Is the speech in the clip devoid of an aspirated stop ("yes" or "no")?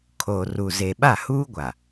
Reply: no